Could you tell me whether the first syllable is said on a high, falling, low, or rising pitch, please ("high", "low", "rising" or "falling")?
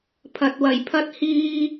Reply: low